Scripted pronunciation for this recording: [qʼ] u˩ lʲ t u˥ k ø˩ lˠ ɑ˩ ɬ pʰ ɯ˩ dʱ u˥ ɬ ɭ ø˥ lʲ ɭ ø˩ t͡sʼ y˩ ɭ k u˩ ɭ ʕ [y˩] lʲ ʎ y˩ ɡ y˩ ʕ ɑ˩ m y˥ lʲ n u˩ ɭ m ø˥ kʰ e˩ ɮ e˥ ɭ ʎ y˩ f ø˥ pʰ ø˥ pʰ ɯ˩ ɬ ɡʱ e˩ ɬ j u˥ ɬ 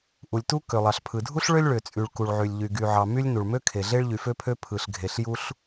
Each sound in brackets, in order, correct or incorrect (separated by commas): incorrect, correct